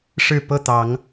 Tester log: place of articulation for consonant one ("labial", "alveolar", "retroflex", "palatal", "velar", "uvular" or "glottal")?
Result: retroflex